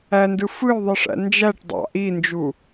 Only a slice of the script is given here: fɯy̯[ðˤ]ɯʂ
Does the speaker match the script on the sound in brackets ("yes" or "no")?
yes